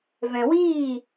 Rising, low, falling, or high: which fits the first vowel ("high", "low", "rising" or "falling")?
low